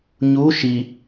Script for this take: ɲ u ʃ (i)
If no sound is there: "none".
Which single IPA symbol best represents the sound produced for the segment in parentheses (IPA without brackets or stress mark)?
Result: i